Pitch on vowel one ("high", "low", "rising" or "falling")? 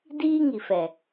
high